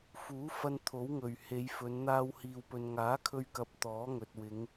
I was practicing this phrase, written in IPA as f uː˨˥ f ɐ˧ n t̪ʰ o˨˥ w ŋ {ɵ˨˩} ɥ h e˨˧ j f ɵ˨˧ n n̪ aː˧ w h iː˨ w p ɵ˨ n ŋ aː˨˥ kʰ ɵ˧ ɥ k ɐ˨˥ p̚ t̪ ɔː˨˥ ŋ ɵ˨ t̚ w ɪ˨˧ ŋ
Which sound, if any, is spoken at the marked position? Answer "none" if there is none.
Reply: ɵ˨˩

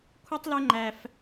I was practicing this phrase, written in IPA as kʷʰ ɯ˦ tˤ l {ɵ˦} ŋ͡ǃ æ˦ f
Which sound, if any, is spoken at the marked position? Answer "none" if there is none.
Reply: ø˦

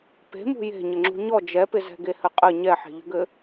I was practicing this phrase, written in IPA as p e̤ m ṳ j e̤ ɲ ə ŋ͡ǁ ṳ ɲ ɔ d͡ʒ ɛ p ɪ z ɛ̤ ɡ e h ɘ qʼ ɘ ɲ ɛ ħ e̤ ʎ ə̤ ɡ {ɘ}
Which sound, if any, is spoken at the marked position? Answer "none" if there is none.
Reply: ɘ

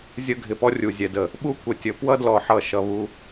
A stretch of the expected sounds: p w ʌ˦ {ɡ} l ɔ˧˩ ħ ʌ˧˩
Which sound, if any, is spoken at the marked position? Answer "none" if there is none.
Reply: d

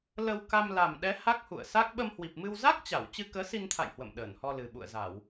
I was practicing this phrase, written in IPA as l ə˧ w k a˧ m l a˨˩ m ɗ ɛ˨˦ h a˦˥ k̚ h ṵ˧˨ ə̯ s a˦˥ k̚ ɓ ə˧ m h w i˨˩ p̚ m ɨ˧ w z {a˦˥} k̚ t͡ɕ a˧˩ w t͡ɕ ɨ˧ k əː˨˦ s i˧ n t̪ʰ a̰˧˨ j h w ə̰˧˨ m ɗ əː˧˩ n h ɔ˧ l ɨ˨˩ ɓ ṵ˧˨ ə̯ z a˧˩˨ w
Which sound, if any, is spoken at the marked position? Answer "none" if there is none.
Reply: a˦˥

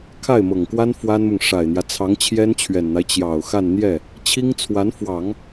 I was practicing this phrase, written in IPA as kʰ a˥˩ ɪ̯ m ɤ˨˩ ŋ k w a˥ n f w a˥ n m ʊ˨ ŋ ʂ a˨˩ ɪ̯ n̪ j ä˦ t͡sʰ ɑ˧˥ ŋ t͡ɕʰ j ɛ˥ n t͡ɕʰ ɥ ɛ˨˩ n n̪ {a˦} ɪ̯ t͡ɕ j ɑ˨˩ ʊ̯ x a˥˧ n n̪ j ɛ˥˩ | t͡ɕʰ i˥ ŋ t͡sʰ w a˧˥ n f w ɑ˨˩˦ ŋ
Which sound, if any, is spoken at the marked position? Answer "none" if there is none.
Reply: a˦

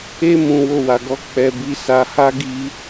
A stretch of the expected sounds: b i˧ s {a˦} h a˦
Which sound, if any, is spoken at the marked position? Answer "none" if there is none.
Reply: a˧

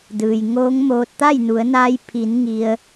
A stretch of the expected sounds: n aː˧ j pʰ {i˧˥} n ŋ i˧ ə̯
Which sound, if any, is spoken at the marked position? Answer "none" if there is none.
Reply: i˩˧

